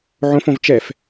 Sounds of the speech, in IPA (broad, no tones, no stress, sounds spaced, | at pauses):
ʕ õ f õ v t͡ʃ ɛ f